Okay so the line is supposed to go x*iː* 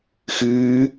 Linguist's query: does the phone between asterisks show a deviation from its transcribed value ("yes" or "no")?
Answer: yes